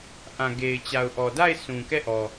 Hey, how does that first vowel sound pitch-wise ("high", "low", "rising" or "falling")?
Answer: low